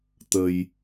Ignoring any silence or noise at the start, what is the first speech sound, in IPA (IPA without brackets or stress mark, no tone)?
t̪